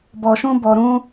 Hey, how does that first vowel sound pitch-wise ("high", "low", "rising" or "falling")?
low